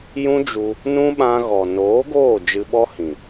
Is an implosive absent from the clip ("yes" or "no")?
no